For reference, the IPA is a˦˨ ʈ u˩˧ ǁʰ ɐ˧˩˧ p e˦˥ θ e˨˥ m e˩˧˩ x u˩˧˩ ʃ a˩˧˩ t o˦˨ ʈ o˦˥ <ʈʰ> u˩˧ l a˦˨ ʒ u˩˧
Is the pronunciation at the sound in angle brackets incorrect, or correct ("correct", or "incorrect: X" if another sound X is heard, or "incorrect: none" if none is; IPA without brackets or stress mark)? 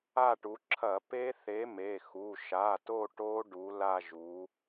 incorrect: ɖ